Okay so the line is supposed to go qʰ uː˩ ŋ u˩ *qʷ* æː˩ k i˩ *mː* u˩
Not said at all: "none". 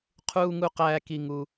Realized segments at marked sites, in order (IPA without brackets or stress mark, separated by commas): q, ŋ